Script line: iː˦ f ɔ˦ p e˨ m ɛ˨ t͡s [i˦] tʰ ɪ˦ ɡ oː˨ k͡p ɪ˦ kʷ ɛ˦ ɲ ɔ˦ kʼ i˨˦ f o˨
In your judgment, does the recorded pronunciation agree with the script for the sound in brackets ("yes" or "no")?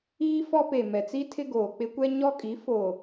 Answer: yes